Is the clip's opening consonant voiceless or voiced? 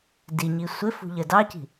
voiced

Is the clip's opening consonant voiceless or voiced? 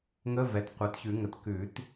voiced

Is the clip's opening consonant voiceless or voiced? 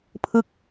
voiceless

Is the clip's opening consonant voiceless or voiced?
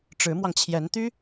voiceless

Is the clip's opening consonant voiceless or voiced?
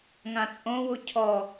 voiced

